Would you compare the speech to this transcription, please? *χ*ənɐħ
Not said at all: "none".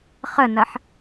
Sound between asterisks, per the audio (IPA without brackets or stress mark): χ